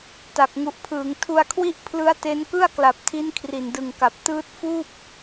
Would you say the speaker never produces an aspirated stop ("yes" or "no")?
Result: no